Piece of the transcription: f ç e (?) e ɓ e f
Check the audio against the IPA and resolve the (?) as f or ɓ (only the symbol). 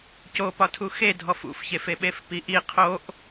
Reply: f